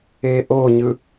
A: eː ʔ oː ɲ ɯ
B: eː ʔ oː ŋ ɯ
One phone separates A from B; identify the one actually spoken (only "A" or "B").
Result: A